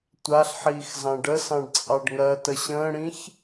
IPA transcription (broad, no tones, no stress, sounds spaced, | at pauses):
tʷ a ɬ ħ iː x z ɑ̃ ɖ ə s ɑ̃ ɖ t͡sʼ ɑ ɖ ŋ ɜ t ə ɕ ə̃ː ɽ ĩ ç